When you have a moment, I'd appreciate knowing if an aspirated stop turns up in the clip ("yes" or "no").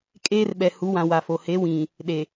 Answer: no